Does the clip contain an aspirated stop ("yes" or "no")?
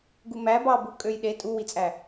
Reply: no